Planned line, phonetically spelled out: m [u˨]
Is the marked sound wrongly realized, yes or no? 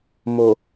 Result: yes